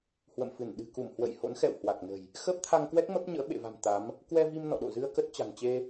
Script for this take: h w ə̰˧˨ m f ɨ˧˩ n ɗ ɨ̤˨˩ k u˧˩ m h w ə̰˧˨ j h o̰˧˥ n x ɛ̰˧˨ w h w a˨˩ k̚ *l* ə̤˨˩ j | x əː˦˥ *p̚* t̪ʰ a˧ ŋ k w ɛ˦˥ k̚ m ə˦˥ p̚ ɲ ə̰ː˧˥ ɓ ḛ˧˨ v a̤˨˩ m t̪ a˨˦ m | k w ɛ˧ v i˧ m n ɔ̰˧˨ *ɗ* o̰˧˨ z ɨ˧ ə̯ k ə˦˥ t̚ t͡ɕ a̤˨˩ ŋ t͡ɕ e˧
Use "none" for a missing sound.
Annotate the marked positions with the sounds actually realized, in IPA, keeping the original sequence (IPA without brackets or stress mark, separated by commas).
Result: n, p̚, ɗ